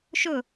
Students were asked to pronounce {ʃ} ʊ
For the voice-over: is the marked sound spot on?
yes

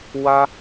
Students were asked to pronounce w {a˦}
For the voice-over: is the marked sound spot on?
yes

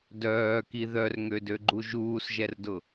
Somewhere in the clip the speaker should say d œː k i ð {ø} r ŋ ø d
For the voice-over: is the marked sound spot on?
no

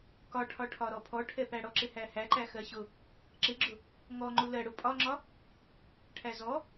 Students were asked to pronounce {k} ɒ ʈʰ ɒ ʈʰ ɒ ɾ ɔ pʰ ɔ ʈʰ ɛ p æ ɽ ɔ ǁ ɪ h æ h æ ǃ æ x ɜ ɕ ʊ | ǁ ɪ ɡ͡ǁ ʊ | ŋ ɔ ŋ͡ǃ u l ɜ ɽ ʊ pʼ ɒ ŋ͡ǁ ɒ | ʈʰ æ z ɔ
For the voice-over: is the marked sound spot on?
yes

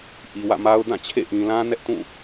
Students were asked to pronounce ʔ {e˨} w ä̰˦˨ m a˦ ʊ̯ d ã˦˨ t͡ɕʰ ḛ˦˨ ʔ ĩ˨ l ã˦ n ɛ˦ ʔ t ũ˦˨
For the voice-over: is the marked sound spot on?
no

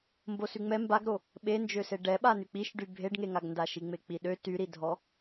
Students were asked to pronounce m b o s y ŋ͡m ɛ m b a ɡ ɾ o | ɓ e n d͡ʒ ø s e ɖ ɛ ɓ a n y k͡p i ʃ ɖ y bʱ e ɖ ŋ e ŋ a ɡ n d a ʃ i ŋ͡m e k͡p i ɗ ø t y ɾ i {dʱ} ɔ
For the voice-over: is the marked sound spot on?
yes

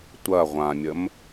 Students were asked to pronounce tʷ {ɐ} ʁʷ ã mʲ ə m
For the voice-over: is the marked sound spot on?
yes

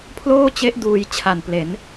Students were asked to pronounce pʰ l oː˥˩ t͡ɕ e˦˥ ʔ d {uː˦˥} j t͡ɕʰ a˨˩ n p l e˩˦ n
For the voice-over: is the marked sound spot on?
no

